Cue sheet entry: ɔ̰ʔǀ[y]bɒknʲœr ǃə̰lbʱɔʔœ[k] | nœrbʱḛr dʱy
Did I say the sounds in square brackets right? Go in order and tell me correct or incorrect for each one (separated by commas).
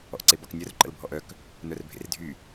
incorrect, correct